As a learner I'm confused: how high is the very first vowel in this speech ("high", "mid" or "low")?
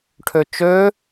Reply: mid